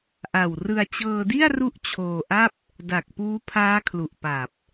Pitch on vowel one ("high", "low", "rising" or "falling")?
low